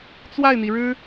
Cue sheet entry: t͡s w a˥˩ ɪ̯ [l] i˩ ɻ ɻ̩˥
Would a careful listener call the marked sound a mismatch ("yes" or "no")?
yes